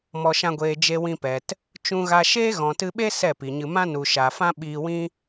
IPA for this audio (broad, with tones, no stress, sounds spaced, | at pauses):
m ɔ˨ ʃ ã˧ ɡʷ eː˨ d͡ʒ e˧ w ĩ˧ p ɛ˨ t | t͡ʃ ũ˧ ɣ a˧ ʃ eː˦ ɣ ɔ̃˨ t ɨ˧ ɓ e˦ s ɛ˦˨ p i˨ ɲ ɨ˧ m ã˦ n u˨ ʃ a˨ f ã˦ ɓ iː˧ w ĩ˦